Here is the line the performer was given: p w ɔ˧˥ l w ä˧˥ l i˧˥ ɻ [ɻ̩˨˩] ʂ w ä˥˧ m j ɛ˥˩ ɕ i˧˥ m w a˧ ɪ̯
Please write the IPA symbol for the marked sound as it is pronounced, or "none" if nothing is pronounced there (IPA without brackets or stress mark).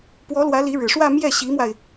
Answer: ɻ̩˨˩